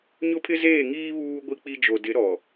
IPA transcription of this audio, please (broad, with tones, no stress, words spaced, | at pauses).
ɲʊ˦pʰɪ˦zeː˦˨ŋiː˦ βuː˦ ɡʷi˦k͡pi˦ d͡ʒo˨dɪ˨˦ ɾɔ˨